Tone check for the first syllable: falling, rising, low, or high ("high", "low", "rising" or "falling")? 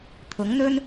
rising